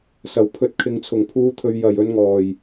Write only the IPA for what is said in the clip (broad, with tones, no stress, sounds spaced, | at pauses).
s ɐ˨˩ w pʰ ɵ˨˥ t̚ kʰ ɪ˨ ŋ t͡sʰ ʊ˨˩ ŋ pʰ uː˨˧ t̪ʰ ɵ˨ ɥ j ɐ˨˩ j ɵ˨˧ n ŋ ɔː˨˩ j